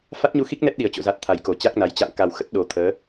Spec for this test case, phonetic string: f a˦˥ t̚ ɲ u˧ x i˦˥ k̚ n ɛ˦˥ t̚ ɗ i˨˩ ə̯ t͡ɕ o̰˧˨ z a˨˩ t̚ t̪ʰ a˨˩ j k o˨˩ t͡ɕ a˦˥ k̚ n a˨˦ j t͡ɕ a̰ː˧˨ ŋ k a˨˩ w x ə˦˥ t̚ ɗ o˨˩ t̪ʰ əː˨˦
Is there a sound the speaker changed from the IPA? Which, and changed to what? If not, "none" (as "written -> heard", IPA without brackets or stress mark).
none